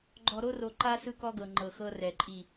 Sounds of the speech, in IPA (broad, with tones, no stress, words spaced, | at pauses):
ɡ͡ǃɔ˨ɾo˦ro˨ǃa˦ sɯ˦kɔ˦ɡɤ˨ ŋ͡ǃɤ˨xɤ˦rɛ˨ǃʼi˦˨